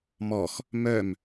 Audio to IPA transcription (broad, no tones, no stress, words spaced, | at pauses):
mɔx | mœm